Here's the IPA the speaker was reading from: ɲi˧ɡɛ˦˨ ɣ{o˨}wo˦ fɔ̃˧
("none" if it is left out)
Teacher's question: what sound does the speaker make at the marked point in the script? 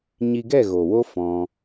o˨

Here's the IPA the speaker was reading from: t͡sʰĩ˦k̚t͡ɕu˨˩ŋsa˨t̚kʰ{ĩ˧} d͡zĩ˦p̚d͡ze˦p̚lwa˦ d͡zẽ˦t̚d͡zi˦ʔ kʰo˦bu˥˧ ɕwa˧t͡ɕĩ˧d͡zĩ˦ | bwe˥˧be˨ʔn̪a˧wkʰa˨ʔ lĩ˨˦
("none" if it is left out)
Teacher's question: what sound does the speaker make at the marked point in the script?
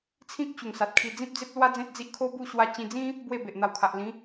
i˧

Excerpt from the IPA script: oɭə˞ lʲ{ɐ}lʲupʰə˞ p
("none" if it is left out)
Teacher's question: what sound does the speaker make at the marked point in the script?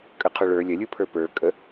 ɐ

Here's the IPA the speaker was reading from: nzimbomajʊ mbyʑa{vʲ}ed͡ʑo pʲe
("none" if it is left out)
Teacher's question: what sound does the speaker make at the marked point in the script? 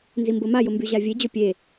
vʲ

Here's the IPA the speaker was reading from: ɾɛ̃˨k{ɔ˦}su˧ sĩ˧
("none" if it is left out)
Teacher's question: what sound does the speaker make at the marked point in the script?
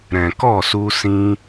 ɔ˦˨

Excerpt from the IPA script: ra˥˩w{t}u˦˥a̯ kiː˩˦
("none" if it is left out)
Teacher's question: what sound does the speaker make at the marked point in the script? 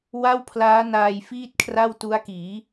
t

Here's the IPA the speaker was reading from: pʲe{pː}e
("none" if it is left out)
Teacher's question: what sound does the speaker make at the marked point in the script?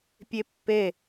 pː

